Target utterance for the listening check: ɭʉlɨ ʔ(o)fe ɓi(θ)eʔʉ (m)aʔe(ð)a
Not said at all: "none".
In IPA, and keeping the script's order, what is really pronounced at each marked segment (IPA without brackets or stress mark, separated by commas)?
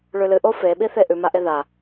o, θ, m, ð